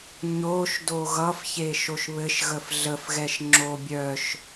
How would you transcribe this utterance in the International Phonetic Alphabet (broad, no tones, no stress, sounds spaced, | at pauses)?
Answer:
ɲ o ʃ d o ɣ ʌ f ç e ʃ o ʃ β ɘ ʃ ɣ ə f ɮ ə f ɣ ɛ ʃ ŋ͡ǁ o bʲ œ ʃ